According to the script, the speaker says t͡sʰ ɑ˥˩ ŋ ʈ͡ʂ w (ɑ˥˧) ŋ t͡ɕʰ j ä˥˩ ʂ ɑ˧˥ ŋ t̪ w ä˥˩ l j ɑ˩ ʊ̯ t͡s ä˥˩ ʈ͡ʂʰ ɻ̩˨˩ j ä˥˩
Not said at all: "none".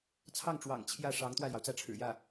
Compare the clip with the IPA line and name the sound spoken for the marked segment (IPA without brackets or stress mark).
ɑ̰˨˩